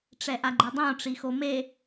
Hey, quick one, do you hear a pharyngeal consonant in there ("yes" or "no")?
no